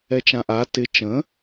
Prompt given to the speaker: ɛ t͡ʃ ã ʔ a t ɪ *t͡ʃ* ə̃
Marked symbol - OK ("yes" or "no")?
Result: yes